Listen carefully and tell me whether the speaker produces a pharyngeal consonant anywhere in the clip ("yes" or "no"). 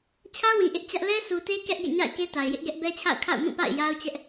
no